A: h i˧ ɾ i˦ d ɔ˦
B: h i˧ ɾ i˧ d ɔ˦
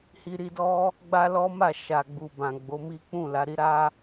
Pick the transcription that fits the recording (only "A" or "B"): B